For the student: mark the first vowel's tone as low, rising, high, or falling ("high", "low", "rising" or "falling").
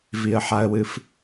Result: low